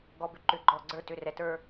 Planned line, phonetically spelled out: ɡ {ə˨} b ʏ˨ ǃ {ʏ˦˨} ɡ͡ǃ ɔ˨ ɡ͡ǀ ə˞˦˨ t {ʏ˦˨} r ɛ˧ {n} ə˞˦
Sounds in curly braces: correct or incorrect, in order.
incorrect: ɔ˨, incorrect: ʏ˨, correct, incorrect: t

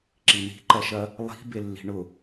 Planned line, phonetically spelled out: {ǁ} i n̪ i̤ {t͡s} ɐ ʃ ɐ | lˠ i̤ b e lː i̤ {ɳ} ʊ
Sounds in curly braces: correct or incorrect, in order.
correct, incorrect: ǃ, correct

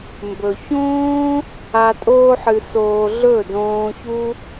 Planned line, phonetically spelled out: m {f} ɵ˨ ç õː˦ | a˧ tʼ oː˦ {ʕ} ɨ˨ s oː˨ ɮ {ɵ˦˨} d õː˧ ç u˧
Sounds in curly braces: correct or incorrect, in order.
incorrect: b, incorrect: ħ, correct

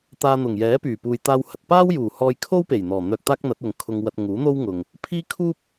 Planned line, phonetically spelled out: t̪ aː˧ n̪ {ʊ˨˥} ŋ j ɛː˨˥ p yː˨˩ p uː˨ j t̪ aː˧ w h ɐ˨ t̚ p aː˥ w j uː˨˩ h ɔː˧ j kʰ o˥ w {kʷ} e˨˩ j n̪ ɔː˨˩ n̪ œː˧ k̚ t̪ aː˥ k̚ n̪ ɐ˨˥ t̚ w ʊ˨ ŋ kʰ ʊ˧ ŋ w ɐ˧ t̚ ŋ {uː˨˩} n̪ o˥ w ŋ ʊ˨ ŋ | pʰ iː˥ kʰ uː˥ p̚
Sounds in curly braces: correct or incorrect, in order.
incorrect: ʊ˨˩, incorrect: p, incorrect: uː˨˥

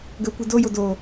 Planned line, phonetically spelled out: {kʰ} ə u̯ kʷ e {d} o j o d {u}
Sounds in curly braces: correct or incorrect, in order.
incorrect: ɡ, correct, incorrect: o

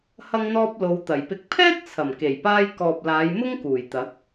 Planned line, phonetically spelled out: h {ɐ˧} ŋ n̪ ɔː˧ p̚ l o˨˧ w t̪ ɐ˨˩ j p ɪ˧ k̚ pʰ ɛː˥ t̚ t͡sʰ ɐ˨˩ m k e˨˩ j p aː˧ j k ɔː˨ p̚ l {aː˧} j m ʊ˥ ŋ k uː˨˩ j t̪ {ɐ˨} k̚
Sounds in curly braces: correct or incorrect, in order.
correct, incorrect: aː˨˧, incorrect: ɐ˨˥

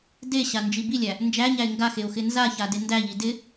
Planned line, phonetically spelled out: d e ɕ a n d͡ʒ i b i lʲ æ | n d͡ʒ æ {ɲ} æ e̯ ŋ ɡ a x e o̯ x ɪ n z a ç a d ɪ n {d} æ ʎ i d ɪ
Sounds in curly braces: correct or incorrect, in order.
correct, correct

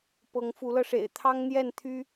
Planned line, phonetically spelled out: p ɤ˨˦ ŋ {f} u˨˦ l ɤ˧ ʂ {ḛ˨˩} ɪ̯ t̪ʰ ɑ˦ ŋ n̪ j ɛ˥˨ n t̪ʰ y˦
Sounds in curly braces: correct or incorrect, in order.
correct, correct

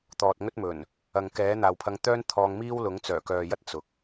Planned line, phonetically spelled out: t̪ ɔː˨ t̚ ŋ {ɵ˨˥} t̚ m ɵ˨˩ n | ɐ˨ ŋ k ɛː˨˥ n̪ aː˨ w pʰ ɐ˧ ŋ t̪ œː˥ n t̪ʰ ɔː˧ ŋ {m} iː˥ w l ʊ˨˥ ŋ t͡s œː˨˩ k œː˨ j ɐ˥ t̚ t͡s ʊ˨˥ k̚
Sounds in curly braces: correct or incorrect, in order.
incorrect: ɵ˥, correct

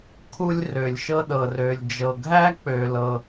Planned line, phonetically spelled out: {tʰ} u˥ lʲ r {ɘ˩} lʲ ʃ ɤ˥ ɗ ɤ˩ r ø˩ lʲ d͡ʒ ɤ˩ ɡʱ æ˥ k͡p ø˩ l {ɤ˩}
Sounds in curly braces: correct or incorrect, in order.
incorrect: kʰ, incorrect: ø˩, correct

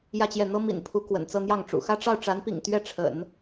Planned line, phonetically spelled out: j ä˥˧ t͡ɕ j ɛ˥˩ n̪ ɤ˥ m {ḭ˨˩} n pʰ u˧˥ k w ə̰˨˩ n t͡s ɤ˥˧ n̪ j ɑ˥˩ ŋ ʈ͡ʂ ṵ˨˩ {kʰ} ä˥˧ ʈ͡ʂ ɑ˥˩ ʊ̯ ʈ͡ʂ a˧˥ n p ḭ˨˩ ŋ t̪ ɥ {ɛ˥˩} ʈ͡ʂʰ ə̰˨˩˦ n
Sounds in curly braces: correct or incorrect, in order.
correct, incorrect: x, correct

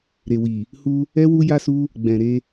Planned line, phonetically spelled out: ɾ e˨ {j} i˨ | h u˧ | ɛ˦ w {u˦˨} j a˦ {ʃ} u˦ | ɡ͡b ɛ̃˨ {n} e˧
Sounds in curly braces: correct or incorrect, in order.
incorrect: w, incorrect: u˦, incorrect: s, incorrect: ɾ

